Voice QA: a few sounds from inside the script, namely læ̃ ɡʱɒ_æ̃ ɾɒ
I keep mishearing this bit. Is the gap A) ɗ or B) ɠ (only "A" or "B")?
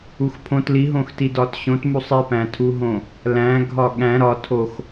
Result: B